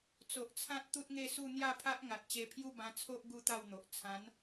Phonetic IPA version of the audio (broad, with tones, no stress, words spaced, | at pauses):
t͡so˨ʔt͡sʰã˦t̚ t̪u˦t̚ŋe˥˧su˥˧ n̪ja˥˧pʰa˦ʔ ŋa˨t̚t͡ɕe˧pʰju˥˧ bã˧t͡sʰo˦ʔ ɡu˦t̪a˥˧wn̪o˨ʔ t͡sʰã˨˦n